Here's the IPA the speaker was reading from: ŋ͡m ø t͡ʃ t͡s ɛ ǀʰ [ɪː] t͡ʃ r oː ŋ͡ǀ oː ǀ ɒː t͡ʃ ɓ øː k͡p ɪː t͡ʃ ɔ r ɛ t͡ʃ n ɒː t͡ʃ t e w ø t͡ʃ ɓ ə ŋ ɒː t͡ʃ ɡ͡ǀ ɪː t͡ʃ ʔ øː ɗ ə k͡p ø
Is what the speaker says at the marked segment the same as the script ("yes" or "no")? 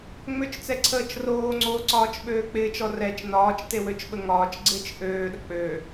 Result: no